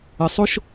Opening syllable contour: low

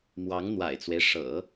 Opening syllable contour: rising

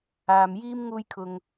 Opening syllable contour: low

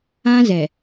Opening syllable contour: high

